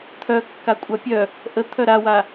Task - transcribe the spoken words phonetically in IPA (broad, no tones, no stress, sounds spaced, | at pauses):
t̪ʰ œ kː a kʷʼ a pʲ œ | ʔ ə t̪ʰ œ ɾ a w a